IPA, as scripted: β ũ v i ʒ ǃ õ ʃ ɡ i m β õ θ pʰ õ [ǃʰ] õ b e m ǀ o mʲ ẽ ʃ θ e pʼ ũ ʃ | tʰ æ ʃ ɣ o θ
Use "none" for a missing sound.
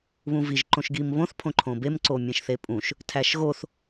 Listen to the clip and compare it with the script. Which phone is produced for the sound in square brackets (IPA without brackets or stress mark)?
ǃʰ